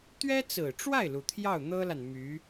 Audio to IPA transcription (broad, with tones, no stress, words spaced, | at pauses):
t̪ɥɛ˥t͡sɹ̩˨˩ʈ͡ʂwa˥˩ɪ̯lu˩ t̪ʰjɑ˥˩ʊ̯n̪ɤ˥la˨n my˧˥